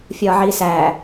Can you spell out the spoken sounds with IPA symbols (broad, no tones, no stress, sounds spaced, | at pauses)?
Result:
fʲ ɒː ʕ iː s æː